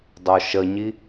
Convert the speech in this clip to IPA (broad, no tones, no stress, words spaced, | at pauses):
dˤoʃəɲi